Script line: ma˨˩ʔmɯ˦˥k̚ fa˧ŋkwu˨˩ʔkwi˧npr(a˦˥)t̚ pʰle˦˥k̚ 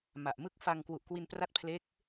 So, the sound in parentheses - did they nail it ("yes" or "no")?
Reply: yes